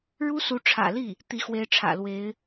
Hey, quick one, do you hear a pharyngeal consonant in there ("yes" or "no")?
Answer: no